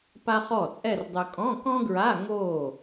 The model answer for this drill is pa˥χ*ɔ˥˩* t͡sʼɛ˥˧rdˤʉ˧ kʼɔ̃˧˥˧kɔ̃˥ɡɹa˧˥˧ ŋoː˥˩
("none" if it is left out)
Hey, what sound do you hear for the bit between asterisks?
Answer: ɔ˥˩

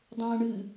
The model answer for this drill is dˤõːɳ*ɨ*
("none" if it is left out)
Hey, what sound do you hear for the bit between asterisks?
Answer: ɨ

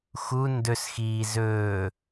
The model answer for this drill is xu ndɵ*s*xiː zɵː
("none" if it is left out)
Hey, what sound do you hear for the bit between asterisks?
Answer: s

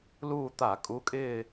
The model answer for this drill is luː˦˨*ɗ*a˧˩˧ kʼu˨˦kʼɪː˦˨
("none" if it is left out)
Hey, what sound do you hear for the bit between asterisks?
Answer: t̪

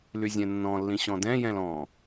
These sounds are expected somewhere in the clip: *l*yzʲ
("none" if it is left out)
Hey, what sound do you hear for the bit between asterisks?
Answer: l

